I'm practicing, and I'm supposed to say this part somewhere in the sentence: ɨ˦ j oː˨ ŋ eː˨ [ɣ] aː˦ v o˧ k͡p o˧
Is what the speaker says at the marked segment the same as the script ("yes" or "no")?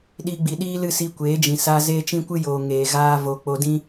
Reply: yes